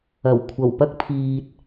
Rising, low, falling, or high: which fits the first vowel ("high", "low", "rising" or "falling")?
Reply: low